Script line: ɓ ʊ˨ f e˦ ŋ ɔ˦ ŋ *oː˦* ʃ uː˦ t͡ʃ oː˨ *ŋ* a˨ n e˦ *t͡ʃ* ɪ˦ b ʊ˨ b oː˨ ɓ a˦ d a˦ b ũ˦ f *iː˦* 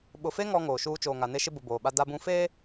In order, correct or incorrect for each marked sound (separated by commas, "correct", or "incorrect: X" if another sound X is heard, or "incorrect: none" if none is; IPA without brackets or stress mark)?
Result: incorrect: oː˨, correct, incorrect: ʃ, incorrect: eː˦